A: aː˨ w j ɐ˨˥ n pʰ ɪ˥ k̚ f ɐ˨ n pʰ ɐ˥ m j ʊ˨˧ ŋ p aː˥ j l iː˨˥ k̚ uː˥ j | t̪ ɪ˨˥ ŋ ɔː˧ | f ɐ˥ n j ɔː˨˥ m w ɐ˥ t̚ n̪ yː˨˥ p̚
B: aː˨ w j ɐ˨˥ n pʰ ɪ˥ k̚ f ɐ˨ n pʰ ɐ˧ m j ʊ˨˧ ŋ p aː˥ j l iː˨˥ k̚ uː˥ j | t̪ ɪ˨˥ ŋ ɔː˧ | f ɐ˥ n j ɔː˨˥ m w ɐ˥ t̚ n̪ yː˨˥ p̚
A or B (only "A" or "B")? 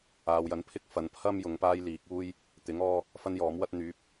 A